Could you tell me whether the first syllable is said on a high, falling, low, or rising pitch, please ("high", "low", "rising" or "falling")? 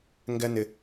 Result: high